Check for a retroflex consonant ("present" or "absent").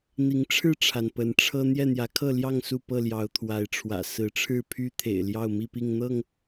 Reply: present